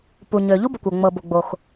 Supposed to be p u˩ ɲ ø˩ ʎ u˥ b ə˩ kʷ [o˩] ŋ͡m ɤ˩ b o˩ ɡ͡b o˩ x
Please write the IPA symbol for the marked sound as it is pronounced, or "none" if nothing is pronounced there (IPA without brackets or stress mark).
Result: ɤ˩